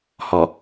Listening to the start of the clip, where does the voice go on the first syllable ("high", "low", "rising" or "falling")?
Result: low